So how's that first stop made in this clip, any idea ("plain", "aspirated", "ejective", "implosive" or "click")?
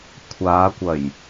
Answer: aspirated